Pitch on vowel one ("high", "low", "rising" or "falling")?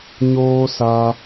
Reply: high